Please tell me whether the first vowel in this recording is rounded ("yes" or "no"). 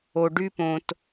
yes